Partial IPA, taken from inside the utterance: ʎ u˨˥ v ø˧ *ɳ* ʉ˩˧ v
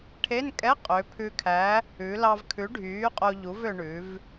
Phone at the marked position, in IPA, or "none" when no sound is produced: ɳ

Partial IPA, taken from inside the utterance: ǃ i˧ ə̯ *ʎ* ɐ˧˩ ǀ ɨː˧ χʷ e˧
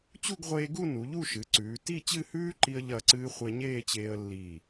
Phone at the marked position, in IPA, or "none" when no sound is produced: ʎ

